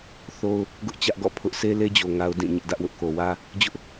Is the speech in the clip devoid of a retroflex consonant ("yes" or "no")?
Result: yes